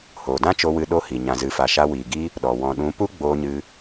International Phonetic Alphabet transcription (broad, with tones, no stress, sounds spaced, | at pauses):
h oː˨ d ã˦ t͡ʃ o˧ w ɨ˧ ɗ o˦ h i˨ ɲ ã˨ z ɨ˨ f a˨ ʃ a˧ w iː˨ ɡ i˦ | ɗ ɔ˨ w ɔ̃˨ ɗ ũ˨˦ p u˦ ɡ͡b oː˧ ɲ ɨ˧